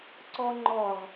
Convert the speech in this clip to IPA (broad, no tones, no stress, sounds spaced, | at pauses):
ǀ ɔ ŋ͡ǃ ɔ ʁ